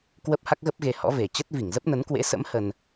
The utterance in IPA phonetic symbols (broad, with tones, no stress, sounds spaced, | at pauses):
k w ə˦˥ p̚ h a˦˥ k̚ ɣ ə˦˥ p̚ ɣ e˧ h ɔ̰˧˥ v e˨˩ t͡ɕ ə˦˥ t̚ v i˧˩ ŋ z ə˦˥ p̚ n ə˨˦ n k w ḛ˧˥ s ə̰˧˥ m h ə˧ n